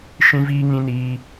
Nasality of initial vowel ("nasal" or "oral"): nasal